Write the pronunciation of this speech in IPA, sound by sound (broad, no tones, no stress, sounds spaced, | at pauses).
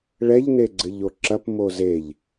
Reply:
ɭ ɛ ʎ n e ɡ͡ǀ ɘ ʎ o ǁ ɐ p m o z e ʎ